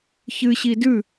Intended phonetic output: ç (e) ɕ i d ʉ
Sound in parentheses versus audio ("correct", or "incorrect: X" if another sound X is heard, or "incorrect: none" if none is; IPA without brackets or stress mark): incorrect: ɨ